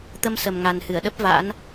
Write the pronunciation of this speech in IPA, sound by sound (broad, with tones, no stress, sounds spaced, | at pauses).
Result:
t̪ ə˧ m s ə˨˩ m ŋ a˨˩ n h ɨ˧˩ ə̯ ɗ ə˦˥ p̚ v a̰˧˥ n